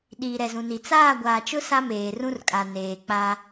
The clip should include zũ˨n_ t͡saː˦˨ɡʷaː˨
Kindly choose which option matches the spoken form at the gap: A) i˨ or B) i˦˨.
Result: A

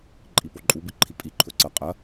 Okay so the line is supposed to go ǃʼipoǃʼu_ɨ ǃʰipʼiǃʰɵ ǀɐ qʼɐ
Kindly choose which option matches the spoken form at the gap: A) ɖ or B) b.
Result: B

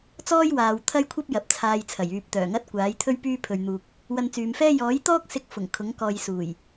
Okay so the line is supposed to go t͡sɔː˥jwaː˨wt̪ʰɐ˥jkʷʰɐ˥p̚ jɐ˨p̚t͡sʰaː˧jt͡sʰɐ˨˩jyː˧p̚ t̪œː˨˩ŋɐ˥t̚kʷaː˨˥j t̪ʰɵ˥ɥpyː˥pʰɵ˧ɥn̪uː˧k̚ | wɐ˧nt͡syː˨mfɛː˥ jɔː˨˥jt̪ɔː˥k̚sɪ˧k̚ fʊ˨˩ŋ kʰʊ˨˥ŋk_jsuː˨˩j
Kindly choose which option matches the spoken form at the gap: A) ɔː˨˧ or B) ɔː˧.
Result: B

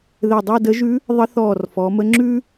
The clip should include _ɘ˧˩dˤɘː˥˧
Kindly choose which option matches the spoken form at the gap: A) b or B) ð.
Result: B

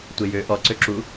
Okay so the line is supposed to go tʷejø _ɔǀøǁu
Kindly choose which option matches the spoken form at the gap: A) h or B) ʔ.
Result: B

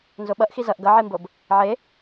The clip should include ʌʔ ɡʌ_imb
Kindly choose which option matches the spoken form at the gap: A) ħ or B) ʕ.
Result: B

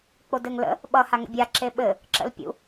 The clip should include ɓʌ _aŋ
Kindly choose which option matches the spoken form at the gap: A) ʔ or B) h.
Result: B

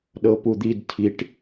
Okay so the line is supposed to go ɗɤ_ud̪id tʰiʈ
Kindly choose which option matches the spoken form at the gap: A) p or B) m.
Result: A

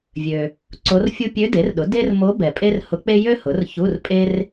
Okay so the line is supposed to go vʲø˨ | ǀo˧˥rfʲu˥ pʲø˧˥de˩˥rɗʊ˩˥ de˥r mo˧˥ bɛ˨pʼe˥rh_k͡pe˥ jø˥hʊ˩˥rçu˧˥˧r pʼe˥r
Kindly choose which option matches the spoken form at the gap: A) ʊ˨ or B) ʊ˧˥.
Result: B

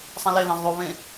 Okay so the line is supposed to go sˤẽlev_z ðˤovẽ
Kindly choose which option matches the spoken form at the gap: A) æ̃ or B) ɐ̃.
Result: A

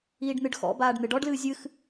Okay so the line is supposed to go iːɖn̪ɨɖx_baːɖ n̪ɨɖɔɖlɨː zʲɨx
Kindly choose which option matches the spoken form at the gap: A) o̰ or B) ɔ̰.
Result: B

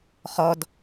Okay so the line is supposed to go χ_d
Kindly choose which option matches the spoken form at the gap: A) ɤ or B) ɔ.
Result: B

